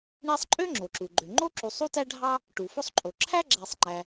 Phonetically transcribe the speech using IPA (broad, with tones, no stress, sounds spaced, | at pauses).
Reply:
ɳ e˦ sˤ ǃʼ ø˥ ŋ͡ǁ o˩ ǁ u˩ ɡ͡ǃ ø˩ ŋ͡ǃ o˥ ǁ u˨ sˤ u˥ t æ˥ ɖʱ ɑ˥ | ʈ u˩ f o˦ sˤ ǃʼ o˩ ǁʰ æ˥ ɡ͡ǁ æ˨ sˤ ŋ͡ǃ æ˨